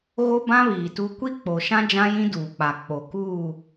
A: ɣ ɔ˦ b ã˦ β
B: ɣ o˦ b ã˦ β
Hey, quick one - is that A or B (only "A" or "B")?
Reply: B